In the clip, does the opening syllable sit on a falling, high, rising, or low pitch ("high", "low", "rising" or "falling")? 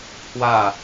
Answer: falling